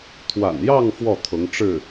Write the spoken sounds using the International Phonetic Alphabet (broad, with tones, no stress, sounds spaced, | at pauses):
t̪ʰ w a̰˨˩ n j ɑ˥˧ ŋ f w ɔ˥˩ t̪ʰ ʊ˧˥ ŋ ʈ͡ʂ ɻ̩˥˩